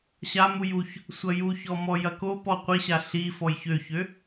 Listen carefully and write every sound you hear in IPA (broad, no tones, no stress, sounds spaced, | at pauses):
ɕ a m u j u ç | sʷ ɐ j u ç ɔ m ɔ j ɐ k o p ɔ qʷ i ɕ a ɬ i f ɔ j ç ø ç ø